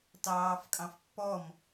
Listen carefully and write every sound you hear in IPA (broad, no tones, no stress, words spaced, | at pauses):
tɑːfkʼɑ̃fpːɔm